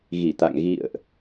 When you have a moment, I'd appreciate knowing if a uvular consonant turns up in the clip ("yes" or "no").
no